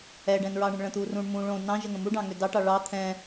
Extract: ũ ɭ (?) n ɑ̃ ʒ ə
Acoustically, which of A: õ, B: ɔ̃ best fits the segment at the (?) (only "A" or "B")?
A